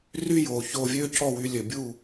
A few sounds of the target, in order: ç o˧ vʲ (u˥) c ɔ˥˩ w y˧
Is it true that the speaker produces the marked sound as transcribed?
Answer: no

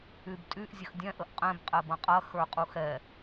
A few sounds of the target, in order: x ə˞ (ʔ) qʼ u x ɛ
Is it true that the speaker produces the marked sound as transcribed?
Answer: no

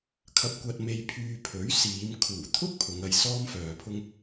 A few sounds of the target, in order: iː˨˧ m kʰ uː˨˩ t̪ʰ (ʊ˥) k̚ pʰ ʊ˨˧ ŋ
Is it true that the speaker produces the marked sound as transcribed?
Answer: yes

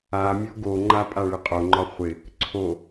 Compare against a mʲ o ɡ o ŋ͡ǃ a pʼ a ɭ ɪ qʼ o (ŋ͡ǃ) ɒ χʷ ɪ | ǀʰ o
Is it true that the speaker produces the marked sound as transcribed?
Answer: yes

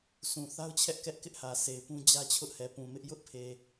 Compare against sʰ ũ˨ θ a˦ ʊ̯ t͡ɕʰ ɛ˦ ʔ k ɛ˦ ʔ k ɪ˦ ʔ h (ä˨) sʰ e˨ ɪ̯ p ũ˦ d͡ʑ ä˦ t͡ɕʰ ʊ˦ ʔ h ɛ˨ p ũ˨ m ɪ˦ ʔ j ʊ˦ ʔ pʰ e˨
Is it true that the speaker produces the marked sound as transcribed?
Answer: yes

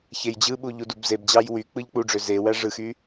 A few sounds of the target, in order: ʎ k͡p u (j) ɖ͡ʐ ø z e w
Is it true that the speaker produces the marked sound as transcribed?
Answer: no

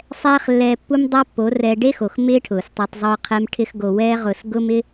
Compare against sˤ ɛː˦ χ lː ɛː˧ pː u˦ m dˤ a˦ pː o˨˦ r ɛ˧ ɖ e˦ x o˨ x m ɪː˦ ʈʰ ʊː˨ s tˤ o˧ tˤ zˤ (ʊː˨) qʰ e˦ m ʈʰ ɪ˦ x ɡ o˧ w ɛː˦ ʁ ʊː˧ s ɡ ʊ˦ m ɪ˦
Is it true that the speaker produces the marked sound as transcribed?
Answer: no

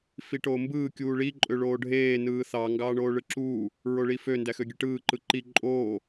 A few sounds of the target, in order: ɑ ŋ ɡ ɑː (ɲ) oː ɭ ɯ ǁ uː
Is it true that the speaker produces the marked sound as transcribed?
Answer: no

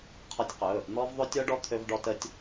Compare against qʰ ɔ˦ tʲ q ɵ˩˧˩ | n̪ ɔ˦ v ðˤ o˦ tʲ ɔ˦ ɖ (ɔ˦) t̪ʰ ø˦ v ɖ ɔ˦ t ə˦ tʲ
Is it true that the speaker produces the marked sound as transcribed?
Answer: yes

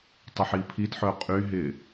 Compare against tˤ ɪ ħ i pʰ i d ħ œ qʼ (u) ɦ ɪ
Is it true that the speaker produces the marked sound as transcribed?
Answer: no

